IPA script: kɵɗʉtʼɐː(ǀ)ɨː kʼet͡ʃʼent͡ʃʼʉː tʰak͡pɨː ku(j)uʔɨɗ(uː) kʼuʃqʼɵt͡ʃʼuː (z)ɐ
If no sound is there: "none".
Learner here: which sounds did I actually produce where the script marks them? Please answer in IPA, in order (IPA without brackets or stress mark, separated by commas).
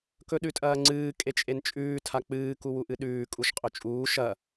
ŋ͡ǀ, w, ʉː, ʃ